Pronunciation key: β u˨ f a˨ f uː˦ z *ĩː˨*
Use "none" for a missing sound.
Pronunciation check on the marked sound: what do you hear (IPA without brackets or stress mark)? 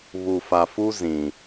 ĩ˨